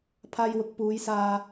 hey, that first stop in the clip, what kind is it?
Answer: aspirated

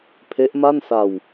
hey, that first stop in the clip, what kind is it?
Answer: aspirated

